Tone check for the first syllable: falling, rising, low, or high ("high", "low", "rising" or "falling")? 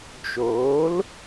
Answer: rising